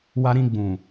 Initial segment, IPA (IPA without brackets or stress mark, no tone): w